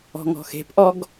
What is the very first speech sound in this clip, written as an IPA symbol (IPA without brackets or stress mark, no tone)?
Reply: ɔ̤